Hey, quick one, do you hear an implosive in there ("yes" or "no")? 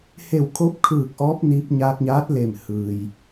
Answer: no